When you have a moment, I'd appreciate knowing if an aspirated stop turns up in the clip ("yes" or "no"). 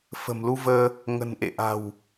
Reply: no